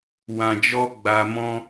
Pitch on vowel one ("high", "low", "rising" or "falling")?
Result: low